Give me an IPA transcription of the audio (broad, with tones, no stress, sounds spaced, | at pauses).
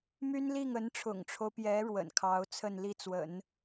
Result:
m y˥ n l i˥˩ ŋ ə˧˥ n ʈ͡ʂʰ ʊ̰˨˩ ŋ ʈ͡ʂʰ o˦ ʊ̯ p j ɛ˧˥ ɻ w ə̰˨˩ n kʰ ɑ˧˥ ʊ̯ t͡sʰ ə˥˧ n l i˥˩ t͡s w ə̰˨˩˦ n